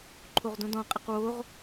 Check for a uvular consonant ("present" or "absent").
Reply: present